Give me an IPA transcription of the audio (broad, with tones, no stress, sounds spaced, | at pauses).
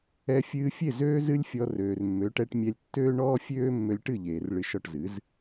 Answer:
ɛ˧ fʲ ɨː˧ fʲ e˥˩ z øː˥ z ɨ˥ lʲ fʲ ɔ˧ r øː˩ r mː ø˩˥ ʈ ɛ˧ ʈ mʲ ɛ˧ lʲ tː øː˥ ɳ ɔː˥ fʲ øː˥ mː ø˧ lʲ ʈ ɨ˥˩ ʎ eː˩ r ɭ ɨ˧ ʃ ɔ˥˩ ʈ z ɨ˩˥ z